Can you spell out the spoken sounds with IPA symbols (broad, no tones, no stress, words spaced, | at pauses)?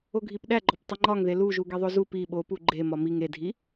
oɡʱipɗæɡ͡ǃɒp tˤiŋ͡ǃɒŋðe luʒu ɡeðˤozu pi ɓopu ɡ͡ǃemɒ miŋ edʱi